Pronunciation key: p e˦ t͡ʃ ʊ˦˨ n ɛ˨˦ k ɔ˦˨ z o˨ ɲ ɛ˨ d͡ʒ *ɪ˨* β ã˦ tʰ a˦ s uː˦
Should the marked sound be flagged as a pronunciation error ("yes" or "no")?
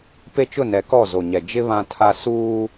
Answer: yes